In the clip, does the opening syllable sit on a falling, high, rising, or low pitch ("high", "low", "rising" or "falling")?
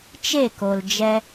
falling